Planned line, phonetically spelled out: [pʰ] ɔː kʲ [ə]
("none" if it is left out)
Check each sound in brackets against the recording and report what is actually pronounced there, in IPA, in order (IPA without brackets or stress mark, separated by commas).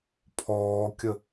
pʰ, ə